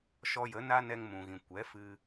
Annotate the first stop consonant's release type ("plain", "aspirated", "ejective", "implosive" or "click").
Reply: plain